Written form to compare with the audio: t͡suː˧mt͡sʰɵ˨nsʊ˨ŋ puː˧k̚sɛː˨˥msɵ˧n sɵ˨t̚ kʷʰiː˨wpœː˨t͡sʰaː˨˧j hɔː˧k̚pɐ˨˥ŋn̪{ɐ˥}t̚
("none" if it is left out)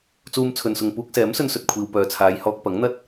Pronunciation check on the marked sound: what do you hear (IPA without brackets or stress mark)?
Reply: ɐ˥